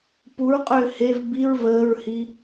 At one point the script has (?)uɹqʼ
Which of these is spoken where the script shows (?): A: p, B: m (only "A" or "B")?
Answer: A